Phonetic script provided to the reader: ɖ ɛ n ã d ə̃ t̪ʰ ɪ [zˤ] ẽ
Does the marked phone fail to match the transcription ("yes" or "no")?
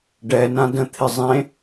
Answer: no